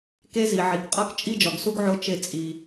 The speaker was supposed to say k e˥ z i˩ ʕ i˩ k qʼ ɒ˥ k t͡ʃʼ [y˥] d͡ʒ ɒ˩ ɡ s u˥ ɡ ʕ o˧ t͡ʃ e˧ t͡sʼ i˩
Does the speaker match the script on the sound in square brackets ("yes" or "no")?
no